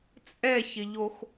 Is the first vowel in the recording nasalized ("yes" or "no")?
no